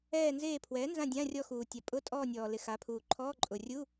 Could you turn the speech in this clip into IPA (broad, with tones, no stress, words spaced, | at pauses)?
ɛː˦˨nzeː˦˨ pʰwɛː˩˥nzã˦˨ dʲã˧˥˧rʲɔ˦˨xuː˩tʲa˩ pʼʊ˧˥˧tʼɔː˦˨nʲɔː˩lɪ˩ xa˩˥pʰuː˩ ǃʰɔː˧˥˧ ǃʼʊ˩rʲu˧˥˧